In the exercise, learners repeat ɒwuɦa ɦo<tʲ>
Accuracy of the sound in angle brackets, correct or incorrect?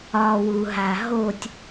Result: correct